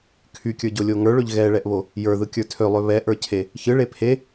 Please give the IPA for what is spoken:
kʰ y kʲ ə˞ ɟ o lʲ o ŋ ə˞ ɭ ø ʎ ɣ ɛ ɭ ɛ ʔ β o | j ə˞ ð ɯ kʲ ə˞ tʰ ø lˠ ø β ɛ ʔ ə˞ cʰ e | ç ɯ ɭ e pʰ e

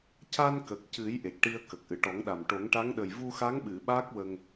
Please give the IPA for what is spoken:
c a˧ n k ə˨˩ k̚ c ɨ˨˩˦ j ʔ e˨˩ k̚ ʈ i˧ ə̯ k ə˨˩ k̚ ʔ ɨ˨˩˨ ʈ ɔ˨˩˦ ŋ ɗ a˨˩ m ʈ o˨˩˦ ŋ ʈ a˧˥ ŋ ɗ ə˨˩ j v u˧ x a˧˥ ŋ ɓ ɨ˨˩˨ ɓ a˦˥ k̚ w ə˧ ŋ

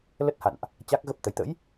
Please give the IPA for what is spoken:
l ə˦˥ t̚ h a̰˧˨ n ʔ | t͡ɕ a˦˥ k̚ ɣ ə˦˥ p̚ t̪ ə˨˦ j t̪ ə̰˧˥ j

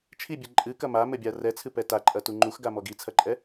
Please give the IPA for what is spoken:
t͡ʃʰ i bʲ ɘ ǃʼ ɨ k ɐ m a m ɘ bʲ a r ɛ t͡sʰ ɨ p ɛ t a ǃʼ ɐ t u ŋ͡ǃ u x ɡ a m ɔ ɡ i t͡sʰ ɐ ǃʼ ɛ

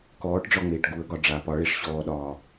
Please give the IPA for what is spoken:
k ɔː ʈ ɖ͡ʐ ɒ ŋ͡m eː ʈ ɡ u ə̯ ɡ ɒ ɖ͡ʐ a p ɒ ɭ e ʂ ɕ ɔː ɗ ɒː

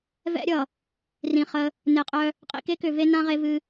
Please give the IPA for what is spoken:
v ɛ̰˦ ɾʲ ʌ˨ | r ĩ˨ χ ə˦ | n e˨ qʼ œ˦ | qʼ ḭ˨ k e˦ k ʏ˨ v e˦ n ã˦ ʁ e˦ v ɨ˦

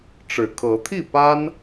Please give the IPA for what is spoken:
ʈ͡ʂ ɻ̩˨˩ kʰ ɤ˨˦ t̪ʰ i˥˨ p a˦ n

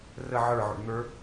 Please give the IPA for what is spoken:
r ə ʕ ə˞ ʕ o̰ ɳ n̪ ə˞

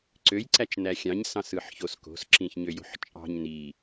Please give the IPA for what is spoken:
ǀ ø j ǀ æ t͡ʃ n æ xʲ ɑ̃ ɲ s ɑ̃ s ɯ ħ ç o s k o̤ s ǁ ĩ ç ɲ ø j o̤ ħ t͡ʃʼ ɑ̤ ɲ n i

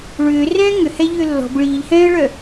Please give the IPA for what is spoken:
ɭ ʏː r ɛ̃ː ŋ ʏ h ɛ ʎ ʏː lː ɔ̤ b ɭ iː ʎ h ɛ̃ː ə̯ ɭ œ

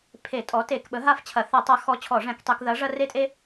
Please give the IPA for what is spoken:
pʰ e˧˩˧ tʼ ɔ˨˥ t e˧˩˧ k ɓ ə˨˥ ɦ a˦ f t͡ɕʰ ɐ˧˩˧ θ ɐ˧˩˧ tˤ a˨˥ x ɔ˨˥ t͡ɕʰ ɔ˧˩˧ ʐ ɛ̃˧˩˧ k tˤ e˧˩˧ k ð ɐ˨˥ ʐ ɐ˦ r e˦ tʼ e˦

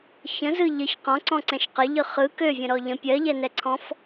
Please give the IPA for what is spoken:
ç ə̃ z ɯ ʎ ə ç q ɔ̃ ǀ ɔ̃ ǀ ɛ̃ ʃ q ə ʎ ɯ χ ɯ k ø vʲ ə̃ ɾ ɔ ʎ ə̃ pʲ ɜ ʎ ɛ n ɛ ǀʰ ɔ̃ f

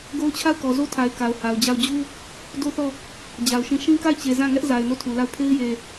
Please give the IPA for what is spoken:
ɡ o˦ ʊ̯ t͡ɕʰ a˦˨ ʊ̯ k ɔ˨ z o˦ tʰ a˨ ɪ̯ k a˨ ʊ̯ h a˨ ʊ̯ d͡ʑ a˦˨ ʊ̯ d͡ʑ u˦ | d o˦ θ ɔ˦˨ | d͡ʑ a˨ ʊ̯ ʃ ĩ˦˨ ʃ ĩ˦ k a˦˨ ɪ̯ t͡ɕ e˨ z ã˦˨ ŋ ɛ˦ ʔ z a˨ ɪ̯ n o˦˨ tʰ u˨ l a˦˨ ʊ̯ pʰ e˦ ɪ̯ j e˨

